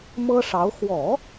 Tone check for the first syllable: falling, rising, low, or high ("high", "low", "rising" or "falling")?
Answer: high